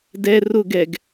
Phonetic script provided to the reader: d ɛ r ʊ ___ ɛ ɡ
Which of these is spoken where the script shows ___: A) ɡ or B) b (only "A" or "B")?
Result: A